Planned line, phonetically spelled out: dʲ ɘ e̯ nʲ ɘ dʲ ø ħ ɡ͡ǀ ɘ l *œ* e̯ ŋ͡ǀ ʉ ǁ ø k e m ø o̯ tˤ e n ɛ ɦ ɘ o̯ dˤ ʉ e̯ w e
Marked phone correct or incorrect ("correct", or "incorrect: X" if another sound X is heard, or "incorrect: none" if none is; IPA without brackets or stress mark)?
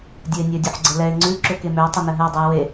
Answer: incorrect: ɛ